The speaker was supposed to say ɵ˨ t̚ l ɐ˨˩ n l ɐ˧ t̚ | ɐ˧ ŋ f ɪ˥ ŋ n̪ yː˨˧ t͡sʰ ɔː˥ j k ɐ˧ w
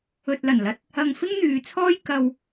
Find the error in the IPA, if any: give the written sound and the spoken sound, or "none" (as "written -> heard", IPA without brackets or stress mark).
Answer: none